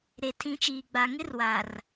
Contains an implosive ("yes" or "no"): no